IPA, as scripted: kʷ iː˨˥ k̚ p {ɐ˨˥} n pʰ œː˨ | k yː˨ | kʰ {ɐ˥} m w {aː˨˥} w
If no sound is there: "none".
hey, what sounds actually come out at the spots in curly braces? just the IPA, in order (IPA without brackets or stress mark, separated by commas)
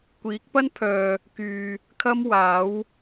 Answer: ɐ˥, ɐ˥, aː˨˥